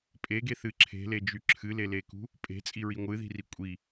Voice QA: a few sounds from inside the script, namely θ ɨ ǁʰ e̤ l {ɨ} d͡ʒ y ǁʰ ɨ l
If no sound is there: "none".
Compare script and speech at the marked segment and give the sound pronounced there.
e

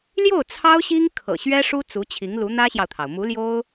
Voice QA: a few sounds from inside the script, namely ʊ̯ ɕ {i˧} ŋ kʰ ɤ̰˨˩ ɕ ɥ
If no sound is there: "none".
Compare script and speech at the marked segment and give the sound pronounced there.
i˥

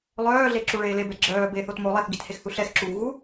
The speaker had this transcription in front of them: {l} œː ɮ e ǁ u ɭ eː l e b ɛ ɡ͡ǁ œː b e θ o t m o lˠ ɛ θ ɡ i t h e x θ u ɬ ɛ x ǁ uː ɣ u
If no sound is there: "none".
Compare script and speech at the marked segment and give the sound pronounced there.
lˠ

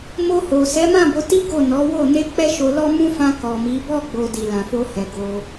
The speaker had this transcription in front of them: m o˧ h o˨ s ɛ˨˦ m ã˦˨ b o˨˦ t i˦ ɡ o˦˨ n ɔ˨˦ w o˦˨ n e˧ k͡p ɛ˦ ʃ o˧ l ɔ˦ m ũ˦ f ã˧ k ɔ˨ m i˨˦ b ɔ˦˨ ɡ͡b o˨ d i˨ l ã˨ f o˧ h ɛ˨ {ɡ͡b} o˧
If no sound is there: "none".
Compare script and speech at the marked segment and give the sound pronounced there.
ɡ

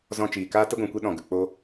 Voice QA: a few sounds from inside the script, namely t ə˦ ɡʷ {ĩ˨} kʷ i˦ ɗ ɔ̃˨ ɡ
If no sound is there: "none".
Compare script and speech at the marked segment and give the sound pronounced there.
ĩ˨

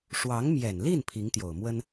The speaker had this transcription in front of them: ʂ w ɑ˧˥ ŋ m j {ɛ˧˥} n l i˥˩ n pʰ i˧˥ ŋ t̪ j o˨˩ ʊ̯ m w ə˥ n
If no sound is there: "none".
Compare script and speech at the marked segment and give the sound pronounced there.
ɛ˨˩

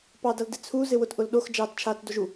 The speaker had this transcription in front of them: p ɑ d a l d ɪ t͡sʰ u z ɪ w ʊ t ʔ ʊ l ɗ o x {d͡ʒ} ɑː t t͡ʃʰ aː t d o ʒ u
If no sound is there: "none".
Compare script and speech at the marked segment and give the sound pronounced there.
d͡ʒ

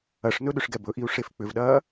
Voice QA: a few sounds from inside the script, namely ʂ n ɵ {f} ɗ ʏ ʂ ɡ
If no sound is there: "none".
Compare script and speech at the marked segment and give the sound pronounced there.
none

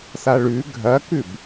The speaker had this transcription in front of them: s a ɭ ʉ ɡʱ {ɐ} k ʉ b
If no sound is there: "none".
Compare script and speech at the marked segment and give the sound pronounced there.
ɐ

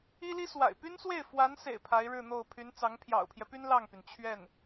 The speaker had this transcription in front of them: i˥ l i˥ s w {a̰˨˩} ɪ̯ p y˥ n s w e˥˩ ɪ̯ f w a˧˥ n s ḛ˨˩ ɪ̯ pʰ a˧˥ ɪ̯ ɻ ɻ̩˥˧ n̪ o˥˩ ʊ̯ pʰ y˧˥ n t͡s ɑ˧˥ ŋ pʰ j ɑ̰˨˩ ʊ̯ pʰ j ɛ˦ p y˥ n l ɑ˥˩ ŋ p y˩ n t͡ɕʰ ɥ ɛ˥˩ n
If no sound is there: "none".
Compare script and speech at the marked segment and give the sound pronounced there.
a̰˨˩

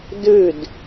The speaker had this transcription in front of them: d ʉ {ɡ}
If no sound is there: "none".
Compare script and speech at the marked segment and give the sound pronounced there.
d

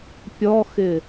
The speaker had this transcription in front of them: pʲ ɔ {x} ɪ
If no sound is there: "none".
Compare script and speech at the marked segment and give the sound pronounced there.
x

